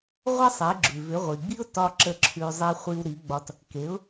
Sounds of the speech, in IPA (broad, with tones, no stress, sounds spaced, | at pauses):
ʁʷ ə˥ sˤ e˩˥ ɡ͡ǁ ʉ˩ v ʏ˩˥ ʁʷ i˩ ɡ͡b i˥ ʊ̯ t ɒ˥ ǁ ə˥˩ ǁʰ ʉ˧ zˤ i˧ χʷ i˧ w ɾ i˩˥ ɡ͡b ɒ˧ t | k e˩˥ ʊ̯